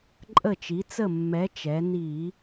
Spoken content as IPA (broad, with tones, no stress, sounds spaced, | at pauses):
ǃʼ ə˧˩ t͡ʃ i˩˧ t͡s ə˧˩ mː ɛ˩˧ t͡ʃ ɛ˩˧ n i˧˩˧